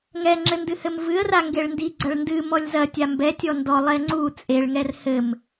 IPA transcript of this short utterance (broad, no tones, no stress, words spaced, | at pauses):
ŋɛŋ͡ǁɘndɨhɘm vɨə̯ra ŋɡeɭndiɡ͡ǀɐɭ ndɨ mɔlʲzɐ tʲambɛtʲɔ ndɔ lˠɛŋ͡ǀu t͡sʼeɭŋɛr hɘm